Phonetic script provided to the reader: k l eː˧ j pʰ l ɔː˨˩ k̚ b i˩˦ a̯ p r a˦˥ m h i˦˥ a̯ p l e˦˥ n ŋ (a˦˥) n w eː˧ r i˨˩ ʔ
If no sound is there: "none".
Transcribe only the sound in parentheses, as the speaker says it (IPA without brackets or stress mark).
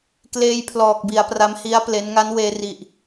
a˦˥